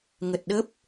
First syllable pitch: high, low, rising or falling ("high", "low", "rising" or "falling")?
low